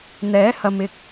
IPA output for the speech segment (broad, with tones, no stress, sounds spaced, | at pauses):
n̪ ɛː˨˥ h ɐ˨ m ɪ˧ k̚